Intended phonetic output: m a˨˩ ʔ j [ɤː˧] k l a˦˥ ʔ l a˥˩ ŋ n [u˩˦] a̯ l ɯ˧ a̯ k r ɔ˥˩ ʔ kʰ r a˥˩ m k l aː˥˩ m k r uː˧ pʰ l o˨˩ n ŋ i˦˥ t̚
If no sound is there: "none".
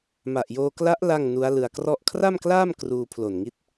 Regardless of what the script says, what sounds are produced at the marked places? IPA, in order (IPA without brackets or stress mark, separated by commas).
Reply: oː˧, u˦˥